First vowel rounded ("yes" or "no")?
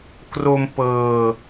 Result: yes